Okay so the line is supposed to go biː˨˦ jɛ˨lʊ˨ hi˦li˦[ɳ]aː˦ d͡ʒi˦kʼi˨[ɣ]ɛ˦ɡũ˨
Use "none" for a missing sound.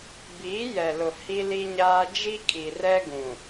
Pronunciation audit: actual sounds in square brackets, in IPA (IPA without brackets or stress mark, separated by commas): ɲ, r